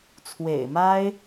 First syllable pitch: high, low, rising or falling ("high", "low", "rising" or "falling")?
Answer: low